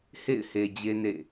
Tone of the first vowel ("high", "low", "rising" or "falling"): falling